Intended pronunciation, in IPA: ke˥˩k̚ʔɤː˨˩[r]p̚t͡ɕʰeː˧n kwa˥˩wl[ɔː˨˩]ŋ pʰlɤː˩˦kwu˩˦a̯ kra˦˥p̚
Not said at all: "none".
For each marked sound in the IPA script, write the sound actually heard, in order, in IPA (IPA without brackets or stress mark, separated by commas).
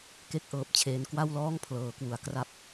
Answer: none, ɔː˥˩